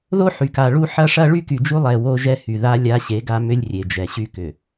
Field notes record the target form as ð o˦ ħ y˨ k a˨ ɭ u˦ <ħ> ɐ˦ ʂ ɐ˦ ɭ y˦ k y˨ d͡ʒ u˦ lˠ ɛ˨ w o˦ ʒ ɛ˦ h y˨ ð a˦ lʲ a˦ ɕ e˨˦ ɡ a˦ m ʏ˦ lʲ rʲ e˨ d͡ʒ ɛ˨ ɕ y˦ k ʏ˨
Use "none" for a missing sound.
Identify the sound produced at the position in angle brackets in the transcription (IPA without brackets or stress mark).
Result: ħ